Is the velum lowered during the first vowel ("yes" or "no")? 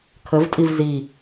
no